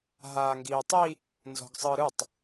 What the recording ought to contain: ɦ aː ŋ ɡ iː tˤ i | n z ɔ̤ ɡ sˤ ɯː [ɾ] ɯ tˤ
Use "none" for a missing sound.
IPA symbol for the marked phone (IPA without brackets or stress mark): ɾ